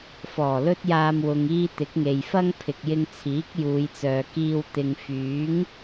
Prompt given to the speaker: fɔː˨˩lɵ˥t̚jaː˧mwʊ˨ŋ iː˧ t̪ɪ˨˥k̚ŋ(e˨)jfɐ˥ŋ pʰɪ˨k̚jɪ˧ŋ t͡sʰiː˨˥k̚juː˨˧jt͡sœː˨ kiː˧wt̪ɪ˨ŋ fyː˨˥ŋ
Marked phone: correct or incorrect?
correct